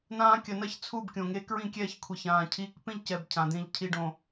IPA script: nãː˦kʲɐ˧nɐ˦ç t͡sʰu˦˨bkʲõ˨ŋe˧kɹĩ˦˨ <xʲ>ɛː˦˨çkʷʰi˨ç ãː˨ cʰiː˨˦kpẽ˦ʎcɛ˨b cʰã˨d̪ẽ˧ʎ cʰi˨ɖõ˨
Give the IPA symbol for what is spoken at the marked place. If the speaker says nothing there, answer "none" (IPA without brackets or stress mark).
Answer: kʲ